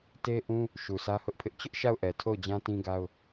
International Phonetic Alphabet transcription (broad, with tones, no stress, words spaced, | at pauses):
te˦ʔũ˦ | ʃu˨sʰä˦hʊ˦ʔpʰɪ˦ʔ t͡ɕʊ˦ʔ ʃa˦˨ʊ̯ʔɛ˨tʰo˦˨ʊ̯d͡ʑã˦ tĩ˦ɡa˦ʊ̯